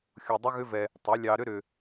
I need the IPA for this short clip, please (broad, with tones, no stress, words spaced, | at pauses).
xʲo˧dˤʏ˦ɣʏ˦vɛ˧ | tˤʏ˨˦lʲɑ˧ɾʏ˦ɾʏ˧